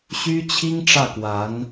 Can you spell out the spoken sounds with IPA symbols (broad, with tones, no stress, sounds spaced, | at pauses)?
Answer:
ɕ y˥ t͡ɕʰ i˥ ŋ ʈ͡ʂ ä˥˩ k w a˧˥ n